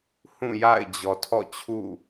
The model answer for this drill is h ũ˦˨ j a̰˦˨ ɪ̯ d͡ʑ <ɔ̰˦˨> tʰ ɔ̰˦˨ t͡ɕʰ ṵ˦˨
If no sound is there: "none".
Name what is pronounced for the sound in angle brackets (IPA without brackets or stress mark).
ɔ˨